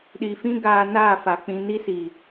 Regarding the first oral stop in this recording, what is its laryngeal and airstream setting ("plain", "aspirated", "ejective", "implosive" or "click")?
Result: implosive